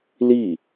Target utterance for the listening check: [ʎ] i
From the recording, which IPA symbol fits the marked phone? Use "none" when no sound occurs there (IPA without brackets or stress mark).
l